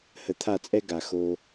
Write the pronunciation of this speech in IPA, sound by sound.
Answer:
h ə˩˥ t̪ʰ a˥˩ t͡sʼ ɛ˥ ɡ a˩ x o˧

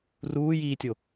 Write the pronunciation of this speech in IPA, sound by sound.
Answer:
r uː j iː tʲ o

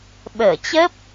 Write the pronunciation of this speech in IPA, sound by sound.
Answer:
ɓ əː˧˩ t͡ɕ ə˦˥ p̚

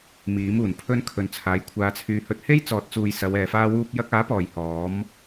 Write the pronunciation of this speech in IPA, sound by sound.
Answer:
m iː˨˥ m uː˨˩ n pʰ ɵ˥ n kʰ ɵ˨ n t͡sʰ aː˨˧ j kʷʰ aː˧ t͡sʰ yː˧ h ɵ˧ t̚ h e˥ j t͡s ɔː˨ t̚ t͡s uː˨ j s ɐ˨˧ w ɛː˨ f aː˥ w uː˥ p̚ j ɐ˧ k̚ aː˨˥ p ɔː˨˩ j h ɔː˨˥ m

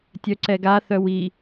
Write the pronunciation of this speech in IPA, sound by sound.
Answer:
tʲ œ ǀ ɛ ɡ a θ œ w i

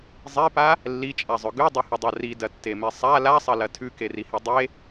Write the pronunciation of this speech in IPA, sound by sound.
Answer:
zˤ e p a | lː i t͡ʃʼ a zˤ ɵ ɡ ʉ dˤ ɐ h ɵ dˤ a r i d ɐ tː e m e sˤ a l a sˤ ɐ l ɐ tʰ ʉ k e r i h e dˤ e

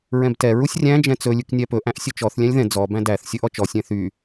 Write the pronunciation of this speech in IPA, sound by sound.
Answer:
ɹ ɛ̃ b t ɛ ɹ u sʲ rʲ æ̃ d͡ʒ ɛ̃ t͡s ɵ lʲ ʉ k nʲ æ p ɵ ʔ æ̃ ʔ sʲ ɵ t͡ʃ ɔ θ lʲ æ̃ lʲ ð ɛ̃ d͡z ɔ b æ̃ d æ θ sʲ ɵ ʔ ɔ t͡ʃ ɔ sʲ ɛ̃ θ y

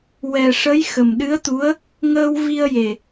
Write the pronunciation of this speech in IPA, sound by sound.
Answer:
w ɛ˨˩ ʂ ə˧˥ j x ə˨˩ m ɗ ɨ˧˥ ə̯ t̪ u˧˥ ə̯ | ŋ əː˧ w v i˧ ə̯ j e˨˩

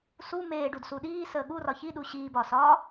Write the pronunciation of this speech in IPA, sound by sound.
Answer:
s u m eː ɖ u d s u ɗ iː s əː ɠ u r ɒ ç i ɗ u ɕ iː b ɒː s ɒː

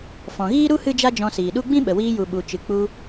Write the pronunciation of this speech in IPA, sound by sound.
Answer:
f ɔ̃˨ ɣ iː˦ ɾ u˦ h ɨ˦ d͡ʒ a˦ d͡ʒ ɔ̃˧ s iː˨ ɗ u˦ ɡ͡b ĩ˦ ɓ ə˨ w iː˧ j u˨ ɓ u˨ t͡ʃ ɨ˨ k͡p u˧

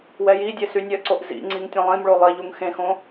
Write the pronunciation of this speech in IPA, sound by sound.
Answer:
w ɛ j i dʲ e s y nʲ œ ǀ o ʔ z ḭ ŋ͡ǀ i ŋ tʲ ɐ̃ lˠ ĩ m ɭ o lˠ i ʎ u ŋ x ẽ x õ

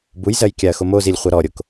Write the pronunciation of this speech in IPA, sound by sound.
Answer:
b u j z ɜ j kʲ a ɐ̯ x o m o z i lʲ χʷ ɜ ɾ ɔ ɾʲ o k

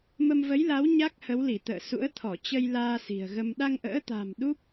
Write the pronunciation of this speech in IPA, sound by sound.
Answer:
m ə˧ m v ə˨˦ j l a˨˦ w ɲ a˦˥ k̚ h ə˨˦ w l i˧˩ t̪ ə̰ː˧˨ s ṵ˧˥ ə̯ t̪ʰ ɔ˧˩ t͡ɕ ə˧ j l aː˧ s i̤˨˩ ə̯ ɣ ə˧ m ɗ a˧ ŋ ʔ ə̰ː˧˥ t̪ a̤˨˩ m ɗ u˦˥ p̚

